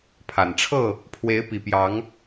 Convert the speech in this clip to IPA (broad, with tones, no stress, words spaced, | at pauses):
pʰa˨˩nʈ͡ʂʰɤ˥˨ | pʰwe˨˦ɪ̯pi˨˩pjɑ˨˦ŋ